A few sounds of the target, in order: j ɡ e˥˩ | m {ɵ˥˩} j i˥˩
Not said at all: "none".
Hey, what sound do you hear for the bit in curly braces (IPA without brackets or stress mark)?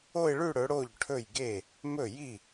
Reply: ɵ˥˩